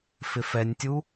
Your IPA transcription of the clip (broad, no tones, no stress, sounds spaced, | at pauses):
f ɪ f ɛ nʲ tʲ u